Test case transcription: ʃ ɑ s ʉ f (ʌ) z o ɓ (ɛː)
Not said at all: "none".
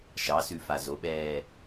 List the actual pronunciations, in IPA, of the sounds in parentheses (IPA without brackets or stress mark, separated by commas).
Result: a, ɛː